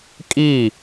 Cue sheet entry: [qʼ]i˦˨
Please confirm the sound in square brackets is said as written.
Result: no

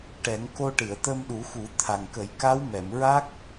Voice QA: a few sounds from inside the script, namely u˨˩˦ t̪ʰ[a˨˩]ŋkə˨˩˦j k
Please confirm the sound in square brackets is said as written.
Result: yes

